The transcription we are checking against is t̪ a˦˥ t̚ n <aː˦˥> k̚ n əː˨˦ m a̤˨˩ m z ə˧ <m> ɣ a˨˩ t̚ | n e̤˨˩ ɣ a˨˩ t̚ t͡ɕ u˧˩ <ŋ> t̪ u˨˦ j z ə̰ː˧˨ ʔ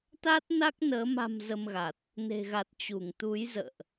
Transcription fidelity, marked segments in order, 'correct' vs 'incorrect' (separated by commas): incorrect, correct, correct